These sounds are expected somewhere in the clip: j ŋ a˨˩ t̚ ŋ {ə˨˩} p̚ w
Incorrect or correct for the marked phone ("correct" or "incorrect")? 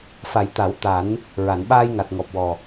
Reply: incorrect